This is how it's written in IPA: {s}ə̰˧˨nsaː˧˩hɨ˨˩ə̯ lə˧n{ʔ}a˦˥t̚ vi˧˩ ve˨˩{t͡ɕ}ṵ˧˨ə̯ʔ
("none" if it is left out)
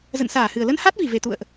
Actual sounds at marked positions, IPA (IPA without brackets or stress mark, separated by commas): z, h, t̪